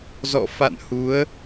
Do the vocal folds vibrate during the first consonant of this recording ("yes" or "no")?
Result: yes